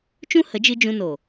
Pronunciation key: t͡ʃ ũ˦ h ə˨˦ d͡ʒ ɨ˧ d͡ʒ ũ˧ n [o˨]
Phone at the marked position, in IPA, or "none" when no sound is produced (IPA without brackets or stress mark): o˨